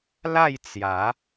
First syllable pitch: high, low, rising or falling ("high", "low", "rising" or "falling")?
falling